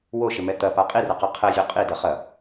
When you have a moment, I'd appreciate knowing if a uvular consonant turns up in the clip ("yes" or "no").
yes